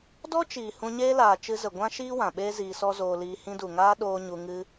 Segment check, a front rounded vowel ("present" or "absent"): absent